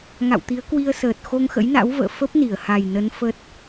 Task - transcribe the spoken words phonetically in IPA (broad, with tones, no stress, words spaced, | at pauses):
ŋa̰˧˨wt̪i˨˦ə̯ kwi˧ə̯səː˨˩t̚ xo˧ŋxə̰˧˥jna̰˧˥wvə̰ː˧˨ fə˦˥p̚ni˧˩ə̯ha˨˩jnə˨˦n fə˦˥t̚